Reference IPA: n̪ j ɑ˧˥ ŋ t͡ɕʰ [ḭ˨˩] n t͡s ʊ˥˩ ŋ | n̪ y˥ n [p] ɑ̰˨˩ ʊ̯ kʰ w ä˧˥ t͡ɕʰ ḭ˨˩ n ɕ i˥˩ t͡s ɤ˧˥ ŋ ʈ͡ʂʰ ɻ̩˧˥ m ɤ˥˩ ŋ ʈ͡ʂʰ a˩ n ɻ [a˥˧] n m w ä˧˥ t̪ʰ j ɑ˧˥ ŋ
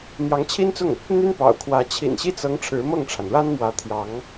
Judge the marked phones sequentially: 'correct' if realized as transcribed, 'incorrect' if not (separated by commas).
incorrect, correct, incorrect